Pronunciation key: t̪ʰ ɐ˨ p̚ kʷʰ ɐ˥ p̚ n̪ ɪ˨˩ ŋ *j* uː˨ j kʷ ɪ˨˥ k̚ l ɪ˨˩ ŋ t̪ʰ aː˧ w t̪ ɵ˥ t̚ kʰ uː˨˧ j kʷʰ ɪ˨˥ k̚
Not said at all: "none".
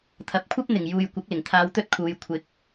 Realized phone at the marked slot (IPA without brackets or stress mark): j